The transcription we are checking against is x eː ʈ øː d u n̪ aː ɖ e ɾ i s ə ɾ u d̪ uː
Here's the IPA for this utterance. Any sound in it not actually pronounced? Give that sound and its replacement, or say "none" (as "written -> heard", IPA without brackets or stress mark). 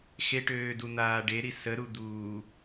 eː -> e